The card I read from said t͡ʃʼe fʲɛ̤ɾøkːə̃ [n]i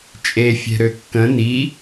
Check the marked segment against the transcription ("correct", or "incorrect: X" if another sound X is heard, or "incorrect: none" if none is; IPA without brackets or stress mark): correct